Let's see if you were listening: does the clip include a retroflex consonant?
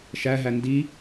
no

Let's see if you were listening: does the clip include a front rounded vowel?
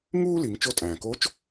no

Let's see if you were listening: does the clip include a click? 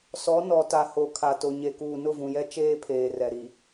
no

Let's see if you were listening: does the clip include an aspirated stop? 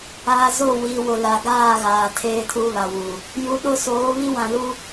yes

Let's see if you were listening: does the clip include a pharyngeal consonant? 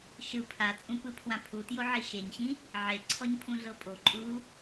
yes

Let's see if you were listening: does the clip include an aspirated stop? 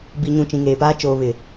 no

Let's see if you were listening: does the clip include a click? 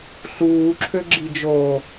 yes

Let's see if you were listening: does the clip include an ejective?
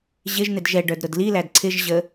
no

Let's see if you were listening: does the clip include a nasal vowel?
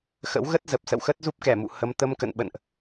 no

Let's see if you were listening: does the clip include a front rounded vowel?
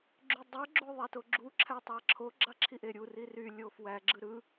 yes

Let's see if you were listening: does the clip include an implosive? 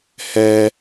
no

